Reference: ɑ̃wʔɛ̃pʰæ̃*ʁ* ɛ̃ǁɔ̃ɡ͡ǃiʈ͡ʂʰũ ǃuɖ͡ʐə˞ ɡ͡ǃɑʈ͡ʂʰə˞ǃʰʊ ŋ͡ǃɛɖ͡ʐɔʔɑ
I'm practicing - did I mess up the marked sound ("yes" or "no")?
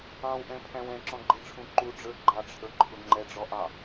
yes